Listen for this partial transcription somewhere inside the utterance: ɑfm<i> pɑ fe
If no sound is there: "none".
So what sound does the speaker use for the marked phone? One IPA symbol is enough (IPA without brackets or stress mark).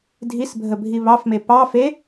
e